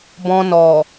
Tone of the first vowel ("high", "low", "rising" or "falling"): low